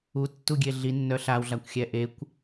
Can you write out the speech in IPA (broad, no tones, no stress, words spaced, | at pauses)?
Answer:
utːuɡʲe ɮinːœ ɬawɮakʷxʲɛ ʔekʷ